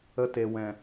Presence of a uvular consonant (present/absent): absent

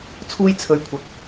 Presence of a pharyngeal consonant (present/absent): absent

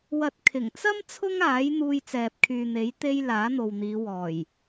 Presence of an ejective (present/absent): absent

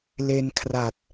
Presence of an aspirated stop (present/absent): present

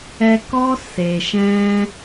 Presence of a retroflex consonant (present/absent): absent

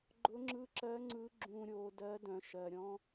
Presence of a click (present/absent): present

